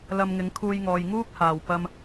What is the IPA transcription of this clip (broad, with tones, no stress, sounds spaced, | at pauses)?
l ɐ˧ m ŋ ɪ˨˥ ŋ kʰ uː˧ j ŋ ɔː˨ j ŋ uː˥ k̚ h aː˨˩ w p ɐ˧ m